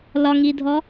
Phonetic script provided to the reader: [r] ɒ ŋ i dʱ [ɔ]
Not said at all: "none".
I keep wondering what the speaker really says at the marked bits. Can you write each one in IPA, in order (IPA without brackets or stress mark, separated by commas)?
l, ɔ